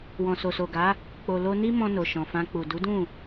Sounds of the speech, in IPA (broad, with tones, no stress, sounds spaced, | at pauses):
w ɔ̃˨ s o˨ s o˨ ɡ a˨˦ | k͡p o˨ l o˧ n i˦ m ɔ̃˧ n o˨ ʃ ɔ̃˨ f ã˧ k͡p u˨ d u˨˦ d ũ˦˨